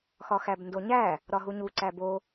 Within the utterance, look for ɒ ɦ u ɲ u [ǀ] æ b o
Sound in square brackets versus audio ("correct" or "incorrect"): correct